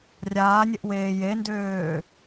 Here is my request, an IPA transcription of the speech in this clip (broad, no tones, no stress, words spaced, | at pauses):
rʲaːnʲ ɪʔweːjendøː